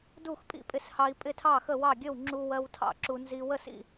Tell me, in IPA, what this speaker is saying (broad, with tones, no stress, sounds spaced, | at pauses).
d u˥˩ x pʼ ḭ˥˩ pʼ ɪ˧ s h ɑ˧ i̯ pʼ ɪ˥˩ tʰ ɑ˥˩ x ə˥˩ w ɑ˥˩ ɡʲ ə˥˩ w ŋ͡ǁ u˧ w ɜ˧ w tʰ ɑ̰˥˩ ǁ u˧ n z i˧ w ə˥˩ s ḭ˥˩